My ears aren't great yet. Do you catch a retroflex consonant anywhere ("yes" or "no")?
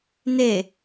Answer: no